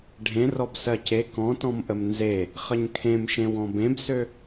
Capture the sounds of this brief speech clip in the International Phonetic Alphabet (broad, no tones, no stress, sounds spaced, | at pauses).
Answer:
ɖʱ ẽ r ɔ b s ɜ c e k ɔ̃ t ɔ̃ m ʔ ə m n z e | χ ə ɲ kʰ ẽ m ʃ ẽ w ɔ̃ b ẽ b s ø